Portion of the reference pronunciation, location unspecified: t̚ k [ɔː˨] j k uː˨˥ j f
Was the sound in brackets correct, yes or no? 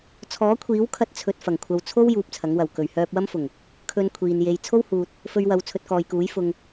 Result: yes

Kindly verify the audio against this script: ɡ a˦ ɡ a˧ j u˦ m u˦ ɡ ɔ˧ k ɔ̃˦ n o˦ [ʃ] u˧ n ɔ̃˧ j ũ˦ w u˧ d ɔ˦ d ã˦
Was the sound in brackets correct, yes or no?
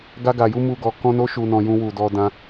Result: yes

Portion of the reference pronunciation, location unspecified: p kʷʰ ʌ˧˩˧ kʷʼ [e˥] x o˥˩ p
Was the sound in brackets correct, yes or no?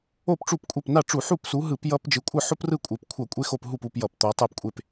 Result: yes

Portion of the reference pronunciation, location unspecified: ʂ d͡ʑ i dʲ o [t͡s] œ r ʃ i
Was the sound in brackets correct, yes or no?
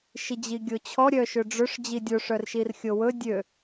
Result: no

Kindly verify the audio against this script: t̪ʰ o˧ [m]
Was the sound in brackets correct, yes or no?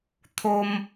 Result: yes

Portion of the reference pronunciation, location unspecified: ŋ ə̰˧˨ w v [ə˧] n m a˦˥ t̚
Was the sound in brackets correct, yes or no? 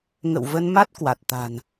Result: yes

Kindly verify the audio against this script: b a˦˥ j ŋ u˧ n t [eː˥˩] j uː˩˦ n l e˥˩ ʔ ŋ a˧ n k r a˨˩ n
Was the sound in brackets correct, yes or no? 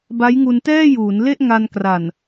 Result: no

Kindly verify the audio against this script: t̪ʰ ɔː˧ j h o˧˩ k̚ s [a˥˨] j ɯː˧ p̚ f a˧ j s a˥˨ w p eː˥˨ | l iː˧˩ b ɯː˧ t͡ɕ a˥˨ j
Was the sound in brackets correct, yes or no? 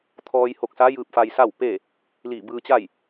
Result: no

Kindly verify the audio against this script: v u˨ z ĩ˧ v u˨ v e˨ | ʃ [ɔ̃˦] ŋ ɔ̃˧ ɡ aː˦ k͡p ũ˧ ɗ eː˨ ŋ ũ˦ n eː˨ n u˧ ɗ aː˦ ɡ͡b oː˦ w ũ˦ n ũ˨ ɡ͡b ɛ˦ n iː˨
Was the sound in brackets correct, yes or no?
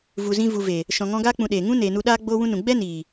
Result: no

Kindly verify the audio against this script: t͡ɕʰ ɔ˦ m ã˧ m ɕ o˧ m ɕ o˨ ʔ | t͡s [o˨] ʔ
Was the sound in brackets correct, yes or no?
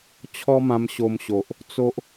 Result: no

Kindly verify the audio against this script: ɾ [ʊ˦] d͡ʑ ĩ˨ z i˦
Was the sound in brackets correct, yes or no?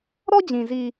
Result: no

